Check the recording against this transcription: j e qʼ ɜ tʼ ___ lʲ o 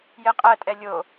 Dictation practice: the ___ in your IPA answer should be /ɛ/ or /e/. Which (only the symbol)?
ɛ